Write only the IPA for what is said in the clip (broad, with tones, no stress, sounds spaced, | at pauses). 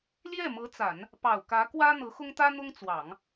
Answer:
l j ɛ˥˩ m ɤ˧˥ t͡s a˨˩˦ n | p ɑ˨˩ ʊ̯ k ä˧˥ k w ä˥ n̪ ɤ˧˥ x ʊ˥ ŋ t̪ ä˥ n̪ ʊ˥ ŋ t͡s w ɑ˨˩˦ ŋ